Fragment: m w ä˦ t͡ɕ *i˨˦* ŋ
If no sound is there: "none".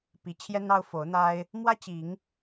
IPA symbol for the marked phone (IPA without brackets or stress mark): i˨˦